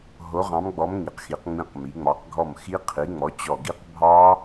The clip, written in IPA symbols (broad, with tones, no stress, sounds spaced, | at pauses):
ɦ o˨˥ ʁ ɑ̃˨˥ m ɡ͡b ɔ˨˥ m ŋ i˩˧ q x i˩˧ q ŋ͡m ĩ˧˩ q m i˩˧ ŋ͡m ɑ˩˧ q ɡʱ ɔ˧˩ m x i˦˥ qʰ i˨˥ ŋ͡m ɔ˨˥ t͡ɕ ɔ˧˩ ɡ i˦˥ q bʱ ɑ˦˥